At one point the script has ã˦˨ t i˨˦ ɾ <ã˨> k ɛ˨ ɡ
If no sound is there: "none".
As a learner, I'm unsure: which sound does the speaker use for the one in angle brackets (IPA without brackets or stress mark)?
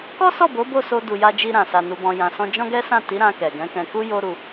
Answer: ã˧